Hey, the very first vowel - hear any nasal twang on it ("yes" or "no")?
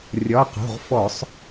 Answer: no